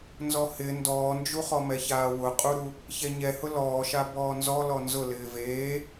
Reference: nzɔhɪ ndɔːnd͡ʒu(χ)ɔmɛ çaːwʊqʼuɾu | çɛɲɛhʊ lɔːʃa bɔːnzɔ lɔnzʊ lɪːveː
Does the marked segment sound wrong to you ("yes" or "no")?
no